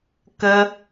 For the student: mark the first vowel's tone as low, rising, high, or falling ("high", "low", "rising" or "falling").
high